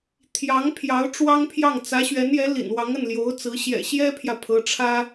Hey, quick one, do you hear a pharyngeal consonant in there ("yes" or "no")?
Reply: no